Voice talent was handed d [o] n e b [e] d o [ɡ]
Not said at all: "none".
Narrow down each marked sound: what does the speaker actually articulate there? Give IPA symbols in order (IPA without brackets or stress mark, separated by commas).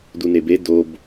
u, e, b